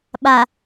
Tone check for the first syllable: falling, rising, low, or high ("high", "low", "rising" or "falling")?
low